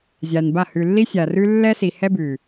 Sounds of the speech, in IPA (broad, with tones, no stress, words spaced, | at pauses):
zʲa˨nba˦˨ hʉ˨lːi˦sʲa˨rʉ˦ lːɛ˦si˨hɛ˦bʉ˨